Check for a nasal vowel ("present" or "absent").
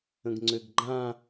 present